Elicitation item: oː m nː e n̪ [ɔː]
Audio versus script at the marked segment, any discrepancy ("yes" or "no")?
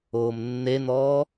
no